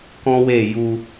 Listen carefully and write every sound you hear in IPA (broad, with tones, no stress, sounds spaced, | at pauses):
k ɔ̃˦ w e˦˨ j u˧